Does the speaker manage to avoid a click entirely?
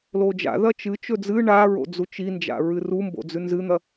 yes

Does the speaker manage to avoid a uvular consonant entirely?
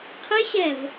no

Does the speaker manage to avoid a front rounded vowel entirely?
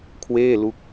yes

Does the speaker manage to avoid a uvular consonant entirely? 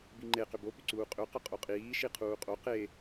no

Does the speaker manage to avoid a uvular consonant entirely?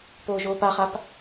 no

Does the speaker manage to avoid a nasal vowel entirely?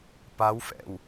yes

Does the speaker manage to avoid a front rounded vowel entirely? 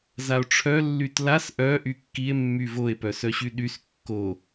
no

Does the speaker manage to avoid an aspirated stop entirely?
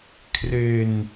no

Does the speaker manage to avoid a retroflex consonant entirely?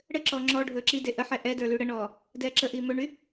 no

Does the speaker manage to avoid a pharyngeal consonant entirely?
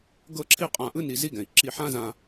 no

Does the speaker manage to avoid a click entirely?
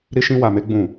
yes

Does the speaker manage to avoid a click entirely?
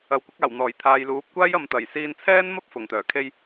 yes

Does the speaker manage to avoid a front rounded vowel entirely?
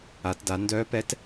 no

